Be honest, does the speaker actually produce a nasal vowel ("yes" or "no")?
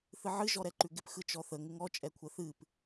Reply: no